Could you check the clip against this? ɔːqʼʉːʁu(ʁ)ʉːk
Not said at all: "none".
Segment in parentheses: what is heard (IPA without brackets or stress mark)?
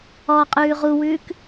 w